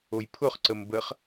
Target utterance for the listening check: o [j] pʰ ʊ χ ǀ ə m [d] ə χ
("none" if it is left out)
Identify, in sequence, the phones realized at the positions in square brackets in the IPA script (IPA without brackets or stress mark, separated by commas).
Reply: j, b